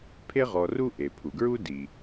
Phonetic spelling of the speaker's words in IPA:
pʰe˦ʁɔ˨ ru˥ʔe˩pʰu˩ ɡɹu˥ di˩

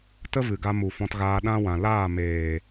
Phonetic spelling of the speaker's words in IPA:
tə˦vɨ˨ɡa˧ mu˨fɔ̃˧tɣaː˧ ɗã˦wã˨ laː˦˨ meː˨

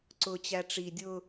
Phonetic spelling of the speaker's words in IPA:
ǀʊ t͡ɕæʈ͡ʂi dʲʊ

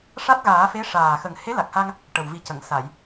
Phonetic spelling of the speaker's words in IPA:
ʂa˦˥t̚ɣaː˨˩˦fe˧˥ ʂaː˨˩ xə˨˩ŋ he˧˥la˨˩k̚ha˧ŋ | ʈə˨˩w vi˨˩cə˨˩˨ŋ sa˨˩˨j

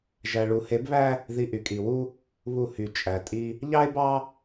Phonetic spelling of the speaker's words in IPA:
ʒæ˨ɭu˨he˨˦bβæ˦ | ði˨ ʔy˨kʼi˨wu˦ | βu˦˨ hy˨ t͡ʃʼæ˨tʼi˦ | ʎɑ˦e̯bɑ˦

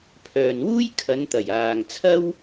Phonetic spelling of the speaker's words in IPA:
pʰœː˨nwuː˥j kʰɐ˨˧nt̪ɐ˨˩j aː˨ŋt͡sʰɐ˥w

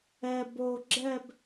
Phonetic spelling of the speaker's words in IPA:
ɛ bo ɡ͡ǁɛb

